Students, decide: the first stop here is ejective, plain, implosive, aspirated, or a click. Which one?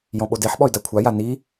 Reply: implosive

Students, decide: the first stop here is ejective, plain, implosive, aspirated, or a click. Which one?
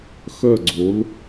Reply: click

